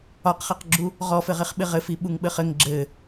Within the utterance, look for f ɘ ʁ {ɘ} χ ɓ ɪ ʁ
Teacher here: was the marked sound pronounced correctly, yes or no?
no